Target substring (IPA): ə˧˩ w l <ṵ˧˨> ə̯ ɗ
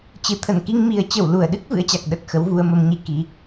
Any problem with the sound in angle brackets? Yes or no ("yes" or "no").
yes